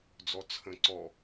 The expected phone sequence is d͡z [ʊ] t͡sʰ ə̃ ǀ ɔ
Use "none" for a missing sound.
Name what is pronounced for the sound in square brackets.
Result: ɔ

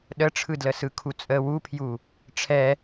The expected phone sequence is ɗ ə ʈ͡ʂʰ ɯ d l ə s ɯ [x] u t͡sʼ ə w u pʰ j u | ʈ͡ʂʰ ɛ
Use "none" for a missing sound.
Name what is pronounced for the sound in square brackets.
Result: kʰ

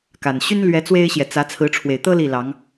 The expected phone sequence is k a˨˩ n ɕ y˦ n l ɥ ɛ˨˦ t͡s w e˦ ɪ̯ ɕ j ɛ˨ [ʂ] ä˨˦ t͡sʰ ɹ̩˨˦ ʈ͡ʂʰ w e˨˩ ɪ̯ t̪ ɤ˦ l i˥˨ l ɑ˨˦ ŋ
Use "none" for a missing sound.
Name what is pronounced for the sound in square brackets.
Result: t͡s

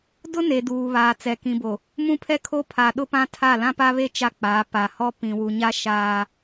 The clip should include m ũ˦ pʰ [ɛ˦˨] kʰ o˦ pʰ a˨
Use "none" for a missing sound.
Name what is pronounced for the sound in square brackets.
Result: ɛ˦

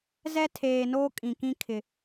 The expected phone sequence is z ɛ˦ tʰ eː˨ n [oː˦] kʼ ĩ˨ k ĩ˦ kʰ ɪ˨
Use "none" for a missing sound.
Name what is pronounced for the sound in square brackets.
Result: oː˦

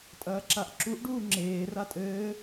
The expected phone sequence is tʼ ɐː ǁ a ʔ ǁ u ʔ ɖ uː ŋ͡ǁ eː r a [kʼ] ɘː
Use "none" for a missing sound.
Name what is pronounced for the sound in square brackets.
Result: tʼ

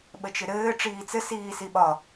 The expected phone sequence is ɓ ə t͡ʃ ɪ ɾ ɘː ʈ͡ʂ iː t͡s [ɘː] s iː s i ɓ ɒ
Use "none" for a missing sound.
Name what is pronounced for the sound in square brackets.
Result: ɘ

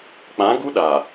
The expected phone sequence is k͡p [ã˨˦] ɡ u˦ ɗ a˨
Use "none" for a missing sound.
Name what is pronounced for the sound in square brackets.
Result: ã˨˦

